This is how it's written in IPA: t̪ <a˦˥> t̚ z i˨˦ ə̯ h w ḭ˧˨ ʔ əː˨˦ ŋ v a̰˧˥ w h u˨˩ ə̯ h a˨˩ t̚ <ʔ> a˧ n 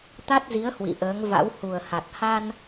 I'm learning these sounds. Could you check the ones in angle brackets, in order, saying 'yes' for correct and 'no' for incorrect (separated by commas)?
yes, no